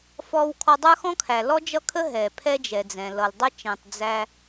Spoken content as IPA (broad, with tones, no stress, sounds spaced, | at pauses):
f ɔ˧ w kʰ ɔ˧ dˤ ə˞˦ x ɔ̃˦ kʰ æ˨ l ɔ˦ d͡ʒ ʌ˦ kʰ ə˦ ɦ ɛ˨ pʰ ɛ˦ d͡ʒ ɛ˨ d͡z ɛ̃˨ l ʌ˨ l dˤ ə˦ t͡ʃ ɛ̃˨ tˤ d͡z æ˧